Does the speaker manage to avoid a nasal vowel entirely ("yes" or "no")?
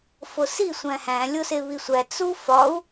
no